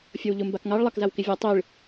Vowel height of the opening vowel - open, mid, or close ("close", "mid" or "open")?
mid